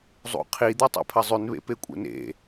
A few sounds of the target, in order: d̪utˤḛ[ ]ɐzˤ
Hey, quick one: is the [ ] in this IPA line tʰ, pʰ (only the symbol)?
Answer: pʰ